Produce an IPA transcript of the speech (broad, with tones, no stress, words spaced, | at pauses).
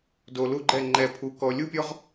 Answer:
do˨lu˦ ɡ͡ǃɛ˦˨ ŋ͡ǃɛ˨pʰu˨ kɔ˨lʲu˦pʲɔ˦ʁ